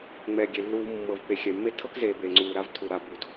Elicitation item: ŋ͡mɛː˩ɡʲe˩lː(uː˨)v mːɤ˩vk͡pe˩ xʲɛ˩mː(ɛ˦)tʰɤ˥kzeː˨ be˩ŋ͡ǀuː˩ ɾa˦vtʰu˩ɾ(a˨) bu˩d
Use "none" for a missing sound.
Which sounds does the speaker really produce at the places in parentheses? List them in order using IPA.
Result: uː˨, e˦, a˨

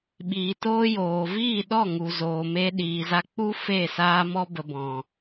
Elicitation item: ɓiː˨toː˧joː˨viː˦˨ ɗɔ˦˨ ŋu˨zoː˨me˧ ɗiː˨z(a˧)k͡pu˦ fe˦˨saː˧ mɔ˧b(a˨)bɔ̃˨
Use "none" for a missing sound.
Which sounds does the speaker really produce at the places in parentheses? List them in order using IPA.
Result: a˧, ə˨

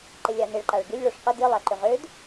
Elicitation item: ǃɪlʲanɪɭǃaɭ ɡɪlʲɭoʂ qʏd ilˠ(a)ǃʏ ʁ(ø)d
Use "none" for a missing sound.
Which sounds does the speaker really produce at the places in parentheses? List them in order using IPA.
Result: a, ø

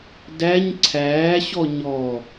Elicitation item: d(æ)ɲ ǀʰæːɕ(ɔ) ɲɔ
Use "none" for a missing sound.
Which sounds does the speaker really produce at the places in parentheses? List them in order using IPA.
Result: æ, ɔ

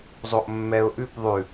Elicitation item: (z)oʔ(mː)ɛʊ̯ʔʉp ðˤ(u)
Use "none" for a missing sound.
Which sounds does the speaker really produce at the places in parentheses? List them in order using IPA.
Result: zˤ, mː, ʉ

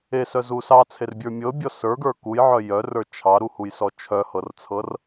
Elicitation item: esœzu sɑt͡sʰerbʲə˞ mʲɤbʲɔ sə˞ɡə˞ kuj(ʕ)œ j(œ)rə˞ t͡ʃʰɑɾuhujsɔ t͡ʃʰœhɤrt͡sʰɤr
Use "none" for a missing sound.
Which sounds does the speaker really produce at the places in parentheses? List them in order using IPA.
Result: ʕ, œ

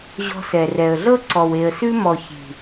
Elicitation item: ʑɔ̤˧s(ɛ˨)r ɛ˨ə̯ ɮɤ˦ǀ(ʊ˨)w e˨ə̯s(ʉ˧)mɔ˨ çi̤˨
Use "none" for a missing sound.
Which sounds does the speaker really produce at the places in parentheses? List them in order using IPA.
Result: ɛ˨, ɔ˨, ʉ˧

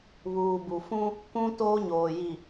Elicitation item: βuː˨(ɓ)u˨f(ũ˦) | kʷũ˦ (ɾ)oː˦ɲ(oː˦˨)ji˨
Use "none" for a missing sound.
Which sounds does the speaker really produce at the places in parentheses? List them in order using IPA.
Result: b, ũ˦, t, oː˨

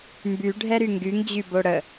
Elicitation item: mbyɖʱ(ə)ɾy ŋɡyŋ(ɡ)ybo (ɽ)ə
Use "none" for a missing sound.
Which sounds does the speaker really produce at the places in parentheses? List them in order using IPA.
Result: ɛ, d͡ʑ, ɽ

